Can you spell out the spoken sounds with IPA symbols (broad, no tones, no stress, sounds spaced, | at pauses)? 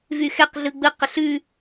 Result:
v y x ɛ q ɮ ɯ ɡ͡b ɯ q ə ɬ ʉ